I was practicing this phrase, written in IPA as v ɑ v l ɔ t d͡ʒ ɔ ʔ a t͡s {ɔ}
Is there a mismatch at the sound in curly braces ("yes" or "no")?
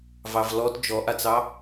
yes